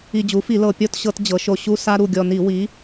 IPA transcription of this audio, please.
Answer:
i˨˩ d͡ʑ u˩˧ f i˧˩˧ l ɤ˨˩ pʲ ɔ˦˨ t ɕ ɤ˧˩˧ t d͡ʑ ɤ˩˧ ʃ o˨˩ ɕ u˦ s a˦ ɾ u˨˩ ɡʲ ɔ˨˩ n i˧˩˧ w i˨˥

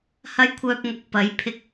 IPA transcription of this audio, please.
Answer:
h ɐ˥ j kʷʰ œː˧ p̚ ŋ ɐ˨ k̚ p ɐ˨˥ j pʰ ɪ˧ k̚

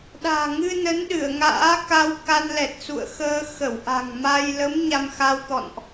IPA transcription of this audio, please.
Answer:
ɗ a̤ː˨˩ ŋ ɨ˧ n ə˨˦ n ɗ ɨ˧˩ ə̯ ŋ a̰ː˧˥ k a˧ w k a˧ n l ɛ˨˩ t̚ s ṵ˧˨ ə̯ x əː˧ x ə˧˩ w ʔ a̤˨˩ ŋ m a˧ j l ə˨˦ m ɲ a˧ m x a˧ w t̪ ɔ̰˧˨ n ʔ

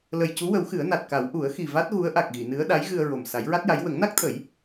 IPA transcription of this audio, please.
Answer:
l ə˨˩ j c u˧˥ w ə˨˩˦ w x ɨ˨˩˦ ə̯ n a˨˩ t̚ k a˨˩˦ w ʔ u˨˩˦ ə̯ x i˨˩ v a˦˥ t̚ ɣ u˧˥ ə̯ ʔ a˨˩ k̚ ɣ i˨˩˨ n ɨ˧˥ ə̯ ɗ a˧˥ j ɣ ɨ˧ ə̯ ɹ o˨˩ m s a˨˩˦ j ɹ a˦˥ t̚ j a˧˥ j w ə˨˩˦ ŋ n a˦˥ k̚ t̪ʰ ə˨˩˦ j

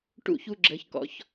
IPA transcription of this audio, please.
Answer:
ʈ ṵ˥˧ ç u˧ ɡ͡ǁ ə˩˧ ç k ɔ̰˩˧ ç

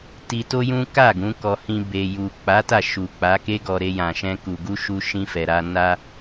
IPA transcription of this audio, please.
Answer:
t i˧ t o˦ j ũ˦ k a˦˨ ɡ ũ˨˦ k ɔ˧ h ĩ˧ b e˨ j u˨ k͡p a˨˦ t a˦˨ ʃ u˨ k͡p a˨˦ k e˦ ɡ ɔ˧ ɾ e˧ j ã˨ ʃ ɛ̃˧ k u˨ ɡ u˧ ʃ u˧ ʃ ĩ˧ f ɛ˨ ɾ a˧ n a˧

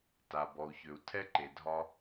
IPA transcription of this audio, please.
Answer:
t a˩ b ɔ˩ u̯ ç ø˩ u̯ tʰ ɛ˥ ǃ e˩ dʱ ɒ˧

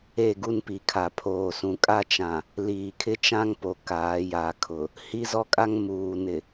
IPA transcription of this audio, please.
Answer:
e˦˨ ɡ u˦ n p i˨ kʰ a˨ pʰ oː˨ s ũ˨ kʼ a˦ t͡ʃ ã˨ | l iː˨ kʰ ɪ˦ t͡ʃ ã˦ ŋ p o˨ k aː˨˦ j a˨ kʰ ʊ˨ | h i˦ z ɔ˦ kʼ a˦ ŋ m uː˨ n ɪ˨

